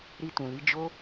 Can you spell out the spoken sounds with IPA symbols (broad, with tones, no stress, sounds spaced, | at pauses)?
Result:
ɾ i˧ t ũ˨ l i˨˦ d͡ʒ o˦